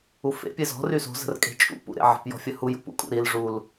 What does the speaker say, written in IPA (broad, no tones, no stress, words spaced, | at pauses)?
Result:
ufḛ pʲezɔ̤ ryso̤ zə̤rkʼe̤t͡ʃʼṵ pṵɾḛʕə̤p jɔ̤fʲəhuj ṵpṵkʼṵɾil ʐul